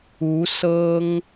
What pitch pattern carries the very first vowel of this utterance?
rising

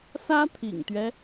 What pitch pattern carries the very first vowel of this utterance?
high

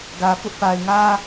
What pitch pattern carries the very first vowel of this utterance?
low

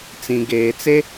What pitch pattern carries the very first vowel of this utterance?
low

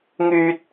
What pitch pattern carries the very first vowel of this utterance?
high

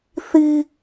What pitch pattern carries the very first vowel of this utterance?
high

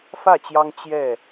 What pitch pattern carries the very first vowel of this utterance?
falling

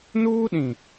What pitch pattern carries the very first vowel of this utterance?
high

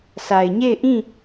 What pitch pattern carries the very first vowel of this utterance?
low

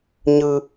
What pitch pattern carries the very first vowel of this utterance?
high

